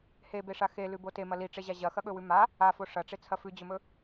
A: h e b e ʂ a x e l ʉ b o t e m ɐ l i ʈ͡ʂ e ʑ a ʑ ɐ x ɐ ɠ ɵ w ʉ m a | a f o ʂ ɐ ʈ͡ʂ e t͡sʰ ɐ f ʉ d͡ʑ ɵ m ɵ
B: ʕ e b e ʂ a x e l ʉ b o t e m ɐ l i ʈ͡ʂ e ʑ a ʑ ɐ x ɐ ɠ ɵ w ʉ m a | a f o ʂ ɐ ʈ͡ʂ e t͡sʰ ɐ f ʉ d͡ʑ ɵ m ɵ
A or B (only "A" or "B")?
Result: A